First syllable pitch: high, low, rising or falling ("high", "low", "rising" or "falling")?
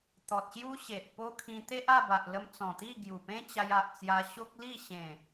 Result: low